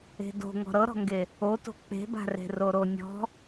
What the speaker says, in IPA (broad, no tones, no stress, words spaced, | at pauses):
e̤do̤ ŋɔ̤ɾɤɾɔ̤ŋɡe | oto̤ k͡pe̤ba̤re̤ roɾonʲɔ̤